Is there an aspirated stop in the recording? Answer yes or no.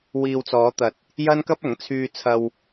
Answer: yes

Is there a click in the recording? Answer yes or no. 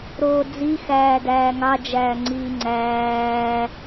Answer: yes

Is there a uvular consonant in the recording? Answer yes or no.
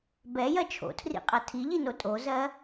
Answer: yes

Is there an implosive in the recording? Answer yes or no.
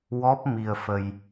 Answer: no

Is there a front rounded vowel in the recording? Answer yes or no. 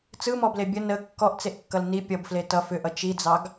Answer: yes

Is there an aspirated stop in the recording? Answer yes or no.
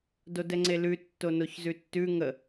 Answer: no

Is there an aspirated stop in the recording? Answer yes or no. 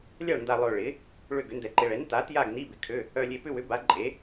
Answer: yes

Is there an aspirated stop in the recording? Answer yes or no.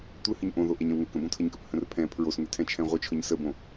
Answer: yes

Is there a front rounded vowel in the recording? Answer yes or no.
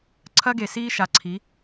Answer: no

